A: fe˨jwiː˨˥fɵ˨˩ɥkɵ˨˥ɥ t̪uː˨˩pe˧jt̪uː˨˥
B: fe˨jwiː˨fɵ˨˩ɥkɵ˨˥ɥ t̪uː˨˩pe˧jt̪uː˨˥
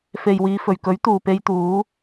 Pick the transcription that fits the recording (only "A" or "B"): B